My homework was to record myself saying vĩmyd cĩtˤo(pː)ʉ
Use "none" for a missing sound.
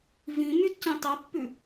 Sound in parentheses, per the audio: pː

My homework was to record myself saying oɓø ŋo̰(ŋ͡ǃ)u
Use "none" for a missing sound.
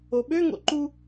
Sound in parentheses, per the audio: ǃ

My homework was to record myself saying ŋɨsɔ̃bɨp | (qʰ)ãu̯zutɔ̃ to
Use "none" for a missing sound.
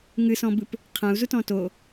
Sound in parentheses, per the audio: qʰ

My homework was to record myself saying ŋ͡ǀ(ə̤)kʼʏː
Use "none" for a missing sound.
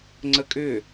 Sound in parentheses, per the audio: ə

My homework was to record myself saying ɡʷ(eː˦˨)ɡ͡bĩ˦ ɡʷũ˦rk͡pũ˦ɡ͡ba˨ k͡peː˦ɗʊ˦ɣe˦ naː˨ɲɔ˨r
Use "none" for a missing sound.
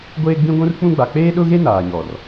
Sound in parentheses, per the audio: eː˦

